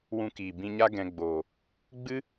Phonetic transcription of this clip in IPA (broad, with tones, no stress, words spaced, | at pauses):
wũ˧kiː˨ bĩ˧ɲa˦ ɡɛ̃˧ɡ͡boː˨ | ɡ͡bɨ˦